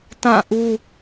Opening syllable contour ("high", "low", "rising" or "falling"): falling